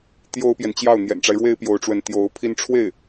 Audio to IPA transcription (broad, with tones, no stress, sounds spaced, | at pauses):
t̪ j o˥ ʊ̯ p j ɛ˨ n t͡ɕ j ɑ˥˩ ʊ̯ n̪ j ɛ̰˨˩ n ʈ͡ʂ a˦ ɪ̯ ɻ w e˥ ɪ̯ p j o˧˥ ʊ̯ ʈ͡ʂ w ə˧˥ n t̪ j o˧˥ ʊ̯ pʰ i˥ n ʈ͡ʂʰ w e˥˩ ɪ̯